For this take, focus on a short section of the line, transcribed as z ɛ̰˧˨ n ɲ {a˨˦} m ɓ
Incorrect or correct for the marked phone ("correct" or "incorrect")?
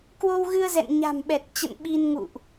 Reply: incorrect